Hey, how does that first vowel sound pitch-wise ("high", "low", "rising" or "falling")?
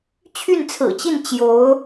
falling